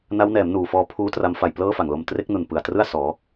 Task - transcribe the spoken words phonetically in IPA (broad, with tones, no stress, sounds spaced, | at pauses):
n a˦˥ w n ɛː˩˦ m n uː˨˩ f ɔː˧ pʰ uː˦˥ t r a˧ m f a˨˩ j p l ɤː˥˩ f a˨˩ ŋ l o˧ m t r e˦˥ k̚ n u˨˩ n p ɯ˨˩ a̯ t r ɯ˥˩ a̯ s ɔː˩˦